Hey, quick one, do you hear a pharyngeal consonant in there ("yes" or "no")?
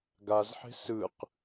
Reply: yes